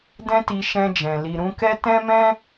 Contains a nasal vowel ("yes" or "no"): yes